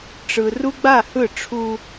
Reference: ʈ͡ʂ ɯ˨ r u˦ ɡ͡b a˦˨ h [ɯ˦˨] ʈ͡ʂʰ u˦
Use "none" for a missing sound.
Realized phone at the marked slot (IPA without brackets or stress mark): ɯ˦˨